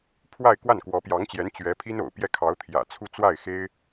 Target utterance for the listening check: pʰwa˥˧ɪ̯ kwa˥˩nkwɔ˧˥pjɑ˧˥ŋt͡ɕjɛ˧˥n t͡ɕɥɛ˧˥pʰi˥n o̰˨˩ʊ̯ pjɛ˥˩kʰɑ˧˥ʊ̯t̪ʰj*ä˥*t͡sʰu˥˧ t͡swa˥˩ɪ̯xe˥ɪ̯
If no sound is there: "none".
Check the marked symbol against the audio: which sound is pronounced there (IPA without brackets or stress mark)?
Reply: ä̰˨˩